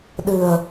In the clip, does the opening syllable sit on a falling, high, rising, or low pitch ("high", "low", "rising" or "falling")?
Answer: low